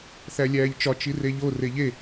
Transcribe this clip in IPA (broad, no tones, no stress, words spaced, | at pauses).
θælʲæːʎt͡ʃɒ t͡ʃireʎo reʎe